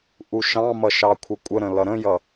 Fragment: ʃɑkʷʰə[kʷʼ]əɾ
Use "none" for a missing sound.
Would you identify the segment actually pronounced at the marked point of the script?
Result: kʷʼ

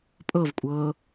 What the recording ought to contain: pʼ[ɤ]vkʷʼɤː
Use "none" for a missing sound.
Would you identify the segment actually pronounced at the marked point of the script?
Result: ɤ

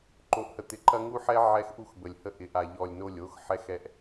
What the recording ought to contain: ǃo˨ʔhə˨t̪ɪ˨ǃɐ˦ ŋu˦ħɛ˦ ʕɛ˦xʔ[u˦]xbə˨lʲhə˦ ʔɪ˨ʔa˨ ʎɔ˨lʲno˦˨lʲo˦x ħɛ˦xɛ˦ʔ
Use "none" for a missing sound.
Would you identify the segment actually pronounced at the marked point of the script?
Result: u˦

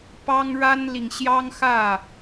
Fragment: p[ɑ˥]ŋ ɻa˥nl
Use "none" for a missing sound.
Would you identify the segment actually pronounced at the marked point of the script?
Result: ɑ˥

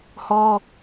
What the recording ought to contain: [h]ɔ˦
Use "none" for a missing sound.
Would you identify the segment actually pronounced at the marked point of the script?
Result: h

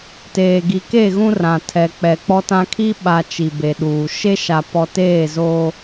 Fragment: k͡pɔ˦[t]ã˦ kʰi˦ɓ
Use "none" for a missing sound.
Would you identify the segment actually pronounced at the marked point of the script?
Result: t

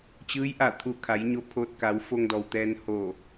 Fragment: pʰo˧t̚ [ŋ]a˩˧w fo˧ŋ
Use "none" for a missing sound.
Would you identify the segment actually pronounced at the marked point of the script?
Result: k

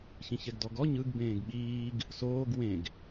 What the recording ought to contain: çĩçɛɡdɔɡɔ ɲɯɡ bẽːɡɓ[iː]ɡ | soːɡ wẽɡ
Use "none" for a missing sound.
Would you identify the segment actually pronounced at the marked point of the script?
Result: iː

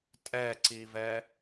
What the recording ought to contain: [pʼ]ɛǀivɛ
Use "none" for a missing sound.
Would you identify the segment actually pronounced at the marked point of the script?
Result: tʼ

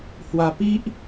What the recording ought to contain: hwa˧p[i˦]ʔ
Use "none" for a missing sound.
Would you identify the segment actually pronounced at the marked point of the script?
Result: i˦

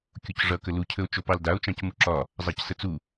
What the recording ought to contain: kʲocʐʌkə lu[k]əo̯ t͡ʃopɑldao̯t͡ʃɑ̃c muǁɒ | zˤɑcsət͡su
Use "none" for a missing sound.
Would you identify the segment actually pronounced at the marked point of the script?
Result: cʰ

